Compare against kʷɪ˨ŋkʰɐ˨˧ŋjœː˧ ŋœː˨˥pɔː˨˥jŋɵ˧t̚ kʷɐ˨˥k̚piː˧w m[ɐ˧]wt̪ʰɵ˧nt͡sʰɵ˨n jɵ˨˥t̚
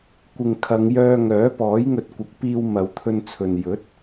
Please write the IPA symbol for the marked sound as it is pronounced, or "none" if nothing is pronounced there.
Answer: ɐ˨˧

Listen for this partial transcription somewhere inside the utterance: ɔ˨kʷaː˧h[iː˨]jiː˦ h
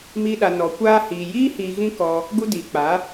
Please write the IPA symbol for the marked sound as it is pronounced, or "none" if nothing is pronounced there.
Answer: iː˨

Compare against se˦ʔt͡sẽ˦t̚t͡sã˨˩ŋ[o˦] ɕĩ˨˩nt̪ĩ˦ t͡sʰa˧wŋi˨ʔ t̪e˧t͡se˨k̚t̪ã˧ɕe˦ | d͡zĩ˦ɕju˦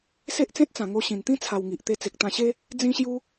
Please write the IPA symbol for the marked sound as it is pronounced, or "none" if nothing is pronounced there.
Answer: o˧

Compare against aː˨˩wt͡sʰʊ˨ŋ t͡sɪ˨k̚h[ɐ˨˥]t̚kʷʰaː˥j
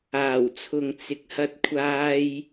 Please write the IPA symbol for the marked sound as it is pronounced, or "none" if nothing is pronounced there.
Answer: ɐ˥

